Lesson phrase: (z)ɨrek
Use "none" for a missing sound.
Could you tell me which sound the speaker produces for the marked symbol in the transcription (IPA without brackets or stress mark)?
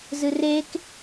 z